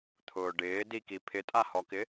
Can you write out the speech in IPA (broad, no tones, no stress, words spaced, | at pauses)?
t̪ʰʊːɖɪː diki pʰɪtʼahɔkɪ